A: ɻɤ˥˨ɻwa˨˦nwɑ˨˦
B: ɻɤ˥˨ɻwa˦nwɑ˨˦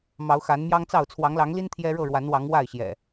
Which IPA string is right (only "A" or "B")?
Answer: A